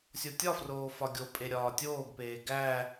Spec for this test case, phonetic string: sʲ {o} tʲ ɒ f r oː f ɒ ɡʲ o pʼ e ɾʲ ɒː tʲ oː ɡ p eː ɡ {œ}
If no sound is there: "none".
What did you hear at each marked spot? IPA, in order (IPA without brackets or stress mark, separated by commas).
o, æ